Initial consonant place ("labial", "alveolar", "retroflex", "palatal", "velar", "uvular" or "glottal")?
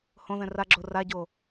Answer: glottal